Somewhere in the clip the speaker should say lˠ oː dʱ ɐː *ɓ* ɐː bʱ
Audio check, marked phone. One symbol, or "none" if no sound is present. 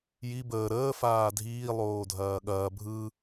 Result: ɠ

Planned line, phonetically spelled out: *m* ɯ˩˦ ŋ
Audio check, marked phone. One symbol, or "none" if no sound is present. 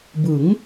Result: b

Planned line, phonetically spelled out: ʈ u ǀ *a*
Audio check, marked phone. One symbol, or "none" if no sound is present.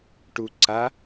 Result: a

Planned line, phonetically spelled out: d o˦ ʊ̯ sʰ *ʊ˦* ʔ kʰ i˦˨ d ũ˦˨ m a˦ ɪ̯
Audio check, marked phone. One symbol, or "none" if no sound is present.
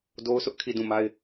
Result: ʊ˦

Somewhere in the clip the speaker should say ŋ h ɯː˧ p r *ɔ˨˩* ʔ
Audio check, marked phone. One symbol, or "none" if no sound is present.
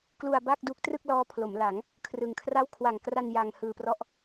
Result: ɔ˥˩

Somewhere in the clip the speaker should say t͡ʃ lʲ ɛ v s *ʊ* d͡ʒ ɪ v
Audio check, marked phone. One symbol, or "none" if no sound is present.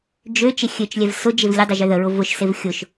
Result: ʊ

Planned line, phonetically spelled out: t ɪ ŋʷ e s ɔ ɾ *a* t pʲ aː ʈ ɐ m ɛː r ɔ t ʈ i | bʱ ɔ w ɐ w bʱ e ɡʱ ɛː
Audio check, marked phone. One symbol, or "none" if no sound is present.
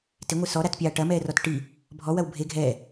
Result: a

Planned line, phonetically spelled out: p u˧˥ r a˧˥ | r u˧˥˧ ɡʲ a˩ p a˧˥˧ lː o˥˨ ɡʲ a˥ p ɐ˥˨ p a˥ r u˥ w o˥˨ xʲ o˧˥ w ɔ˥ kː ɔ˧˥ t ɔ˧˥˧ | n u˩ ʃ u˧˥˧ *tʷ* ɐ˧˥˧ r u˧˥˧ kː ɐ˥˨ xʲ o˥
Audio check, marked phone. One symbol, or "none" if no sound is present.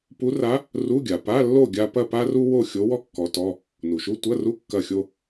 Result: tʷ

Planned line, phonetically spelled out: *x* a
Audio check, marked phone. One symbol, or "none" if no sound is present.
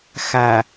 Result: x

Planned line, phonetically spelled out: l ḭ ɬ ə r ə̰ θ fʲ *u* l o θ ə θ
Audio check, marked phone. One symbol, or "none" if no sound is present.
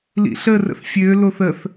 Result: ø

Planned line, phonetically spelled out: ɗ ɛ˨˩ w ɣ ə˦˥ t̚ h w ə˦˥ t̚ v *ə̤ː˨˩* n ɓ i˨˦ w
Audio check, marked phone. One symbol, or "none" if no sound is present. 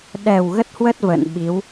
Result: ə̰ː˧˨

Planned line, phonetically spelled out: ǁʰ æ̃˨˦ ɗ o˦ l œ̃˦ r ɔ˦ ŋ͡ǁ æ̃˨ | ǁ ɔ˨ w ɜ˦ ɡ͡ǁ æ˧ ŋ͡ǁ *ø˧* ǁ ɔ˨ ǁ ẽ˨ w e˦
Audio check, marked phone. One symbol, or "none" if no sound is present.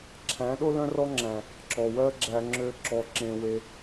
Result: ø˧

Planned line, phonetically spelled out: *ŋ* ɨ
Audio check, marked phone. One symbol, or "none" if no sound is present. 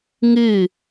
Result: ŋ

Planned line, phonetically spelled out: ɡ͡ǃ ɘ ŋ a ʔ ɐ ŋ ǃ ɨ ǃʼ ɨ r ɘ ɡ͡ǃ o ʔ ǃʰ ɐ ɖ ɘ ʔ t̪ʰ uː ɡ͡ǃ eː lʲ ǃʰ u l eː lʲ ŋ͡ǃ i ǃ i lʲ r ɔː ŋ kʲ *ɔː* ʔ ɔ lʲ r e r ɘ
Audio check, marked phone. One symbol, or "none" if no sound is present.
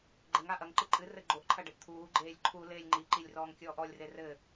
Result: ɔː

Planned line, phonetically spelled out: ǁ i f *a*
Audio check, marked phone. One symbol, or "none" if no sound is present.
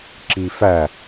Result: æ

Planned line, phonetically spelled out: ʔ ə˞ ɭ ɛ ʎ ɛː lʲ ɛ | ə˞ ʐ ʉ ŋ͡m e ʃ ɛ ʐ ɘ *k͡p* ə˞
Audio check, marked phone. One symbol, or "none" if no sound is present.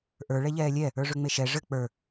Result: k͡p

